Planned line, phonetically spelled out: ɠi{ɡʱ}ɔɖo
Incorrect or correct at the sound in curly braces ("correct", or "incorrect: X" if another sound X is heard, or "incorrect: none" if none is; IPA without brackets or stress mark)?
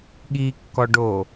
incorrect: kː